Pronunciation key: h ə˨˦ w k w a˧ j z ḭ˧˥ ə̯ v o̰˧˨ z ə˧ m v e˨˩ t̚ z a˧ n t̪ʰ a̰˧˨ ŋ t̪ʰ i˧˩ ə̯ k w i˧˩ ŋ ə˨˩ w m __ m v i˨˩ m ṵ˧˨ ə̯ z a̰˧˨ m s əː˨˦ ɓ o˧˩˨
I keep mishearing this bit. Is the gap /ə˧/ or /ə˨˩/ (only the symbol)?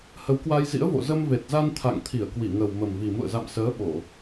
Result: ə˨˩